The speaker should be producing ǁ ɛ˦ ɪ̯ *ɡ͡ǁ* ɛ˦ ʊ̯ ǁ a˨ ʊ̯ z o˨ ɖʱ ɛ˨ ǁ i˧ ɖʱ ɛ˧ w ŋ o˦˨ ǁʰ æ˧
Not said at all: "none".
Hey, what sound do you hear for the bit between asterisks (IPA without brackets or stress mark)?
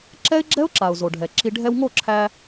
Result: ɡ͡ǁ